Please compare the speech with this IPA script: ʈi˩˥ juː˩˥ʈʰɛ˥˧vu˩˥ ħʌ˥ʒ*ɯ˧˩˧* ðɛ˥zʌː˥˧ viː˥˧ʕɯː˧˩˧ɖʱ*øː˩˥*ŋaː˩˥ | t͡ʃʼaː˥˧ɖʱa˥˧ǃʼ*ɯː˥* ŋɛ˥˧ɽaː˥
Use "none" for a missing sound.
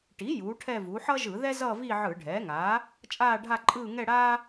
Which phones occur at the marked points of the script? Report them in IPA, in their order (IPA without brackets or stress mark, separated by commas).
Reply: ɯ˧˩˧, ɛː˩˥, ɯː˥˧